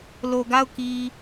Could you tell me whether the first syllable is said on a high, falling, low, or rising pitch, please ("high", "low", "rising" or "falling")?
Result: low